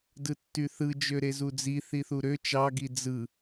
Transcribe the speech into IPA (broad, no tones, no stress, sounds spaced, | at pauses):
d ɯ tː y θ ɯ d͡ʒ ø ɾ e z u d͡z i θ i θ u ɾ ø t͡ʃ ɑ ɡ i d͡z ɯ